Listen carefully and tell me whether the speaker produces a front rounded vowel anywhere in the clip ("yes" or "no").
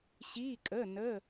no